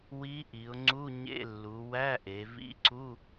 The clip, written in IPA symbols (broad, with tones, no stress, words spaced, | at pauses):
wi˧˥ʔi˩˧ʊ̯ŋ͡ǀu˧˥˧ ɲḛ˧˥˧lːu˩˧wæ˧˥˧ʔe˩˧ vḭ˧˥˧ǀu˧˥˧